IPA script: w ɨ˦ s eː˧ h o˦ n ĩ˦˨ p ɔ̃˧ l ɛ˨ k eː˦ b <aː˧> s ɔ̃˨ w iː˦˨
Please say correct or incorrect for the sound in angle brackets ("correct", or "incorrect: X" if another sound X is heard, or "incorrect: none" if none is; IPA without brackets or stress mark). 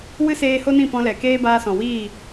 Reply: correct